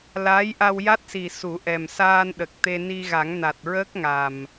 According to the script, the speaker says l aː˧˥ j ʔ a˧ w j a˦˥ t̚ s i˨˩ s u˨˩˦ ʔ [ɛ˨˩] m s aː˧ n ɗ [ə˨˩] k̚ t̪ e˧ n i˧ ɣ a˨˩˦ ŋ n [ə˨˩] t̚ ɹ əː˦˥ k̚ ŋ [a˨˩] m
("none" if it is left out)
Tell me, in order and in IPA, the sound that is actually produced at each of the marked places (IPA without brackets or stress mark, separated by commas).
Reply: ɛ˨˩, ə˨˩, a˨˩, a˨˩